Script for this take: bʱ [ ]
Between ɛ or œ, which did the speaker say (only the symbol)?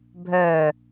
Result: œ